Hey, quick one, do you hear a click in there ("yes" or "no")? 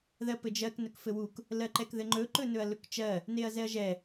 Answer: yes